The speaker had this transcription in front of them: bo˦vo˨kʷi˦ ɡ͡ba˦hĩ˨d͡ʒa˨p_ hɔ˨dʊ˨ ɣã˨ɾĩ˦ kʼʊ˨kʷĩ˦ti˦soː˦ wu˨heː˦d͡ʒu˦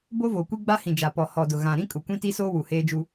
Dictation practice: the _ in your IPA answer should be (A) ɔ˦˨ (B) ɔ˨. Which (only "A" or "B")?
B